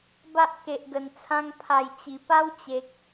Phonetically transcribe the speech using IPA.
b a˦ ʔ k e˨ ʔ ɡ ə˨˩ n t͡sʰ ã˧ ŋ pʰ a˨˩ j t͡ɕ i˨˩ p a˦ w t͡ɕ e˨ k̚

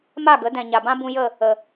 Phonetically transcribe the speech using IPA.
m a˦˨ ɡ ə˨˦ d ɛ̃˨ ɲ a˨ b ã˦ b ũ˧ j ə˦˨ | ə˨

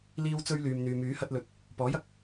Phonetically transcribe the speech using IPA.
l iː˥ w t͡s ɵ˥ ɥ l yː˨ m n̪ yː˨ m yː˨˥ h ɐ˧ t̚ l ɵ˨˥ t̚ | p ɔː˨˥ j ɐ˥ k̚

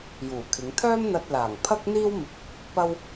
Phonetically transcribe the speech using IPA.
j uː˨˩ kʰ ɪ˨˧ ŋ t̪ʰ œː˥ m n̪ ɐ˧ t̚ l aː˨˩ ŋ pʰ ɐ˥ k̚ n̪ iː˥ w m ɪ˧ k̚ | p ɐ˥ w

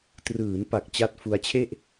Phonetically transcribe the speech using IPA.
t r ɯː˩˦ n p a˨˩ k̚ t͡ɕ a˦˥ t̚ f u˧ a̯ t͡ɕʰ e˥˩ ʔ

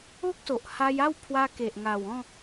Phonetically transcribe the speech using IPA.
o˦ k̚ s o˨ ʔ h a˧ j a˥˧ w pʰ w a˧ k e˨ ʔ ŋ a˨˩ w ɔ̃˥˧

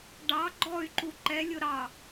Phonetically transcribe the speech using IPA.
ɖ ɑ ɡ͡ǃ ɔ y̯ ǃ u ǃ ɛ lʲ ʊ ɾ ɑ

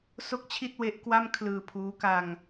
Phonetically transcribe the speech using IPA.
s o˥˩ k̚ t͡ɕʰ i˥˩ t̚ w e˦˥ ʔ k w a˥˩ m kʰ l ɯː˧ pʰ uː˦˥ k a˧ ŋ

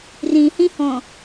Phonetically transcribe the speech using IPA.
r ĩ h ĩ h õ

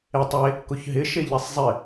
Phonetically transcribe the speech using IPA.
e tˤ e | k ʊ ç ɦ ɪ ʃ e ʎ i sˤ zˤ ɪ

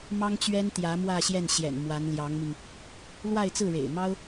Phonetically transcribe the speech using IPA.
m ɑ˥ ŋ t͡ɕ ɥ ɛ˥ n t̪ j ä˧˥ m w ä˥˧ ɕ j ɛ˥˩ n ɕ j ɛ̰˨˩ n m w a˧˥ n l j ɑ˧˥ ŋ m i˧ ŋ | l w a˥˧ ɪ̯ t͡s ɹ̩˥˩ ɻ ḛ˨˩ ɪ̯ m ɑ˥ ʊ̯

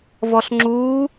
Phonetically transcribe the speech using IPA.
v ɔ ɬ ŋ͡ǁ uː

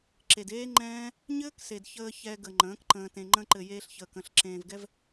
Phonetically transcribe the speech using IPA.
ǁ e˨ d eː˦ ŋ͡ǃ ɛ̃ː˦ | ɲ ɘː˦ k s e˨ d ç əː˧ ç ɛ˧ ɡ ə˨ ŋ͡ǃ ə̃ː˨˦ k ǃ ə̃ː˧ t ẽ˧ ŋ͡ǃ ə̃˧ ǃ ɘ˨ j eː˧ ɬ ç əː˨ k ə̃˦˨ ɬ ǁ ẽː˧ v ɡ ɛ˦ v

